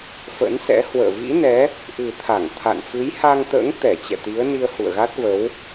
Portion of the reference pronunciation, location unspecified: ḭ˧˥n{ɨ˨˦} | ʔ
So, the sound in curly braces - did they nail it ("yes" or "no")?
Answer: no